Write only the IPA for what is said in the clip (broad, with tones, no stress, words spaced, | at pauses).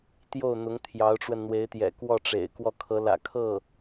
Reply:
t̪jo˥˩ʊ̯n̪ʊ˧˥ŋ t̪ʰjɑ˧˥ʊ̯ʈ͡ʂwə˧nn̪we˧˥ɪ̯t̪jɛ̰˨˩ kwɔ˥˩ʈ͡ʂḛ˨˩ɪ̯ kwɔ˥˩kʰɤ˧˥lä̰˨˩ kʰɤ˥˩